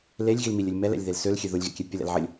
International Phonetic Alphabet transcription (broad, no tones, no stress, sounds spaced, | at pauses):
l e lʲ ɣ i l m i lʲ ɘ lʲ m ɛ l ɛ̰ lʲ ð e l s ø l xʲ ø ð ʊ lʲ ɣ ɛ̰ kʲ ɛ pʲ ʊ l ɛ̰ l ʕ ɘ lʲ